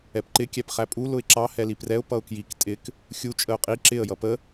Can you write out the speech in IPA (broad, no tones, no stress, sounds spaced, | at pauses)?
ɛ p ǃ ɪ kʲ æ p χ æ pʼ u l ʊ ɪ̯ ǁ ɑ h ɛ l i p r ɛ ʊ̯ p ʌ ʊ̯ k j i k tʼ ɪ k | xʲ u t͡ʃʼ ə ʊ̯ qʼ i ǁ ɪ ə̯ j ʌ p ə